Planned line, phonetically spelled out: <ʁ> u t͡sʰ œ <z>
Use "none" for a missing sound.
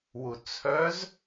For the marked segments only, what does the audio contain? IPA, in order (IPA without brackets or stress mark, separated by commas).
w, z